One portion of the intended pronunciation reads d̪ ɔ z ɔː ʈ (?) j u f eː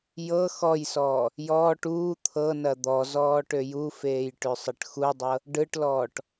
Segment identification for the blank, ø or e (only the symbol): ø